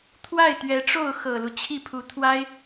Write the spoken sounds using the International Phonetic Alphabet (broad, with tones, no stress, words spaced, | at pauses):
t̪ʰwa˥˩ɪ̯t̪ɥɛ˧˥ʈ͡ʂo˥˩ʊ̯ xɤ˨˩lu˦ t͡ɕʰi˥˩pʰu˧˥ t̪ʰwa˥ɪ̯